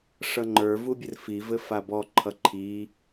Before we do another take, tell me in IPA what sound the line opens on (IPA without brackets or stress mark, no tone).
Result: ʂ